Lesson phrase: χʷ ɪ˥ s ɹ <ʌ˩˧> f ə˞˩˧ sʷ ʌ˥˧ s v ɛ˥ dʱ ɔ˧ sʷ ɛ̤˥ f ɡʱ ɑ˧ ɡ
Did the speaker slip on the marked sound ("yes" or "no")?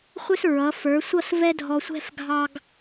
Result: no